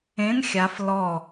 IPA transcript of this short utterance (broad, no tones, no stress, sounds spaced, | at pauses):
ẽ n xʲ a f l ɔ